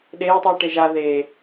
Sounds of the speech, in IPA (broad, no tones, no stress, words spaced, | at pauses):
ɗeːtˤɯː ʈeʒa ðeː